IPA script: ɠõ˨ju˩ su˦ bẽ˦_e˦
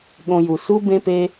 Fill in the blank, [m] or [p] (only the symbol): p